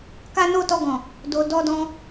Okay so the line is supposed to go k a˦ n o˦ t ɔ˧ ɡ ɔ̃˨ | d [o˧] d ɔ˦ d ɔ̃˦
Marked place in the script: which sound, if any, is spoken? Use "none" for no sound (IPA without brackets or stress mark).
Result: o˧